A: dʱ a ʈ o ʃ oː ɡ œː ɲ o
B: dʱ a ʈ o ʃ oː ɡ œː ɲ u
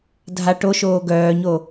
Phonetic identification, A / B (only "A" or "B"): A